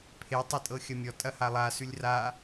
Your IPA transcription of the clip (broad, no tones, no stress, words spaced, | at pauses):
pʰe tˤetʼɤxʲɐmʲɔ tʼɐhalˠa sʉlʲra